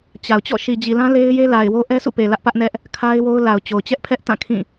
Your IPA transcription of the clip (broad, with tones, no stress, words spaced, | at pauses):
t͡ɕa˨ʊ̯ t͡ɕɔ̰˦˨ʃi˨d͡ʑi˨lã˦ le˦ɪ̯je˦ la˨ɪ̯wo˦ ʔɛ˦sʰṵ˦˨pe˨ lä˦ʔpä˦ʔnɛ˦ʔ | kʰa˦ɪ̯wo˦ʊ̯la˨ʊ̯t͡ɕo˨ʊ̯ t͡ɕɛ˦ʔpʰɛ˦ʔ tã˦˨kʰĩ˦˨